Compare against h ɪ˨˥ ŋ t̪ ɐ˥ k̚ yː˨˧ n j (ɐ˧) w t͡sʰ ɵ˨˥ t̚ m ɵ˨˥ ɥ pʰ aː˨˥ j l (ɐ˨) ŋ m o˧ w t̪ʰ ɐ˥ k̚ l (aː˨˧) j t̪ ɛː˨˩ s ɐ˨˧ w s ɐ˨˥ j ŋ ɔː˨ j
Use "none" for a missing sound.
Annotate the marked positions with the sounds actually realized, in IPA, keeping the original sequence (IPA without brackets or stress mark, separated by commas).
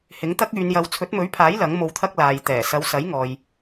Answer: ɐ˧, ɐ˨˥, aː˨